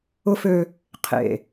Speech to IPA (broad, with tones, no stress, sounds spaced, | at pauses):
ʊ˦ f ø˦ | qʰ ḛ˨